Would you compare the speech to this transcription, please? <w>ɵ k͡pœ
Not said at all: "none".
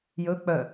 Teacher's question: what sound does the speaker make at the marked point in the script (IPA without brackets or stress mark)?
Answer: j